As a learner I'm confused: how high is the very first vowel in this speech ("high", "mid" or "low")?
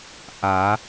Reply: low